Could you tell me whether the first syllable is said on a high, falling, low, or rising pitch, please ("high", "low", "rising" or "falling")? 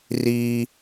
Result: high